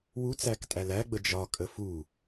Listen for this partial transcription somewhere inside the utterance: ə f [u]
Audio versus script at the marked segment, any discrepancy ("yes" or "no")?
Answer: no